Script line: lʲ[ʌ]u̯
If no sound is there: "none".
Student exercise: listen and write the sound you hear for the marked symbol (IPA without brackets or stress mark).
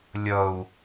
ʌ